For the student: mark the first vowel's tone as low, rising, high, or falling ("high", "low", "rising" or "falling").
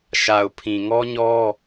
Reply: low